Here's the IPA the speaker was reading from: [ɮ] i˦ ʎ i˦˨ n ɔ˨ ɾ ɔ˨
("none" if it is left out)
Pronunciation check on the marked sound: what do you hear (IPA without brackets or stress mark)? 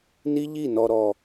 n